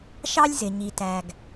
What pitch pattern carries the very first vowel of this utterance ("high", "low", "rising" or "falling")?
high